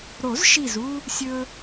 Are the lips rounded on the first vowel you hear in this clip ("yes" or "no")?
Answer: yes